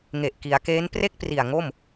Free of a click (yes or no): yes